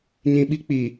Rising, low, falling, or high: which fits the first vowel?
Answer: low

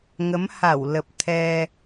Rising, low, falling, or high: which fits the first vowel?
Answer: rising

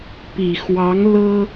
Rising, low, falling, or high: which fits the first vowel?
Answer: low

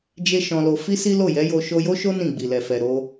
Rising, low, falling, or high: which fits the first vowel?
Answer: high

